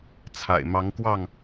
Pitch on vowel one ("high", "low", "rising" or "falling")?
low